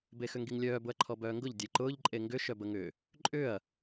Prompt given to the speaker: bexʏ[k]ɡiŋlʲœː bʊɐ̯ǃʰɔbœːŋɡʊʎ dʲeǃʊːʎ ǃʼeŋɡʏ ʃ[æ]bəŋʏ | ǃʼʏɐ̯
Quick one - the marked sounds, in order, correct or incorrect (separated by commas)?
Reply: incorrect, incorrect